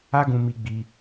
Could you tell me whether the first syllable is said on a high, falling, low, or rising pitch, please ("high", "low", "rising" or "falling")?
high